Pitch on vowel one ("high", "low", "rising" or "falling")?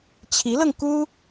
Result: rising